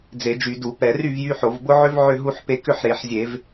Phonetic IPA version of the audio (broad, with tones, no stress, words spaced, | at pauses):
d͡ze˧˩˧d͡ʒy˧˩˧du˧˩˧ pɛ˧˩˧ry˥˨vjy˦ħo˧˩˧v bʊ˦ʕʏ˦v ʕʏ˥˨ɦu˦ħpe˦ kʏ˥˨ħɾe˧˩˧ħzʲe˧˩˧v